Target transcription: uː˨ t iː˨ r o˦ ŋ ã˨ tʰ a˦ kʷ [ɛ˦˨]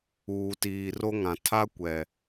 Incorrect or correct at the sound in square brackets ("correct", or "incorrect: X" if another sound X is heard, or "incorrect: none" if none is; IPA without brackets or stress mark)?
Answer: incorrect: ɛ˨